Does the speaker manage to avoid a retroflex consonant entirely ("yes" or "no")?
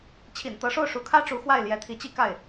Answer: no